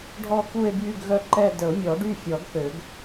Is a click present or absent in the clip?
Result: present